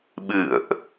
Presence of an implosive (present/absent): present